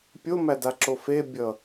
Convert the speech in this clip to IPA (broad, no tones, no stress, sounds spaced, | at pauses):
pʲ o m æ d a ǁ o f e bʲ ʌ